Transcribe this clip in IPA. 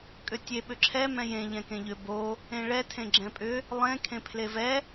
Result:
kʼ ʏ tʲ e ɓ ʏ ǁʰ ɛ m ɛ̃ j ẽ ʎ ɛ̃ k ẽ ʎ ʏ b o | ẽ ɭ ɛ tʰ ẽ ɡ͡ǁ ɛ̃ pʼ ʏ | lˠ ẽ kʰ ẽ pʰ l e v ɛ

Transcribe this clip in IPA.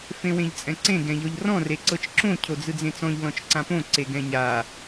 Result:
f ẽ w ẽ ʎ t͡sʼ ɛ̃ ǀ ẽ ɡ ɛ̃ ʎ ɔ ʎ r ɔ̃ r e ǀ ɤ t͡ʃ ǁ õ cʰ o d͡z ɯ d͡z ẽ t͡s ɔ̃ ʎ l ɔ̃ t͡ʃ ǀ ã p õ ǀ e ɡ ɛ̃ ɲ a

